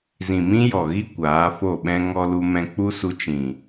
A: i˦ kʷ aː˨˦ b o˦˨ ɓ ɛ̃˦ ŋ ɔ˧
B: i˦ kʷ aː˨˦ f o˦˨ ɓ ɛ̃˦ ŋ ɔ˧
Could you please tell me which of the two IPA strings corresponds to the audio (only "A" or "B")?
B